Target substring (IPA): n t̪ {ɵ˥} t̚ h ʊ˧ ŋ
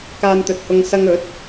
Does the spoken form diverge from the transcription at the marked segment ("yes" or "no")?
yes